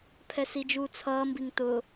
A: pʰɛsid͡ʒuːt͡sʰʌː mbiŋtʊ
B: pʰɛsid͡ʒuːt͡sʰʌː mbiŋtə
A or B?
A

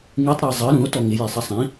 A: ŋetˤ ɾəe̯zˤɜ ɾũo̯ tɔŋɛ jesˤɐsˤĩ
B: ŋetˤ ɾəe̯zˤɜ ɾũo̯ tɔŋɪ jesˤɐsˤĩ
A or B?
B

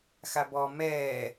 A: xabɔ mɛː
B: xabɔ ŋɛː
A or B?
A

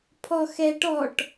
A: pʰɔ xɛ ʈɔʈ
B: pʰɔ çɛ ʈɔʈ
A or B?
A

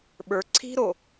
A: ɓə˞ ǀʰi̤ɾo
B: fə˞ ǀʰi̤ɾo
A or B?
A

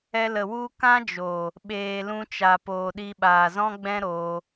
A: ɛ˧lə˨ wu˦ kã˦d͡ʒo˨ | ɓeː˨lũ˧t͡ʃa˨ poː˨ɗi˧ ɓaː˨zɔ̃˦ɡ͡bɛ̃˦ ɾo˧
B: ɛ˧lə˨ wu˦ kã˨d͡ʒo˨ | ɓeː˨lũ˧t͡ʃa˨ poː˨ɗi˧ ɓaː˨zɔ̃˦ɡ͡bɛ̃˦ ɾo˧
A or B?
A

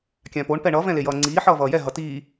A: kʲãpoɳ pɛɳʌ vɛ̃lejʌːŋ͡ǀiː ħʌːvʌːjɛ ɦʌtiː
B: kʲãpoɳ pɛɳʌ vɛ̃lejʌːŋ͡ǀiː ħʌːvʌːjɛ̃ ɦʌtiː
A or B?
A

